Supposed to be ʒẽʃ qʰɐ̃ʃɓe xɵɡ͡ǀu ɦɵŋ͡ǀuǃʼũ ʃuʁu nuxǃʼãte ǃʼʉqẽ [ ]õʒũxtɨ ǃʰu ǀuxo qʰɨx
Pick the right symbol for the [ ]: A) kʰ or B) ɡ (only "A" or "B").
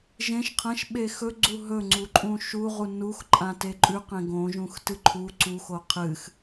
B